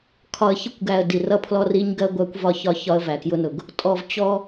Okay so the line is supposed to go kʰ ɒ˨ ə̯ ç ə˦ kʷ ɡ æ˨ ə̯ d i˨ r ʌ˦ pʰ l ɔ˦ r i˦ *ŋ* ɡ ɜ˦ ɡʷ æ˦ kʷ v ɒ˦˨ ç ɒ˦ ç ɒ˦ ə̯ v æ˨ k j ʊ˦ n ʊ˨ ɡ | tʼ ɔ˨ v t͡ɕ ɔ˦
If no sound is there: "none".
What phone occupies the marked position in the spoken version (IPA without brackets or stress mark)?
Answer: ɲ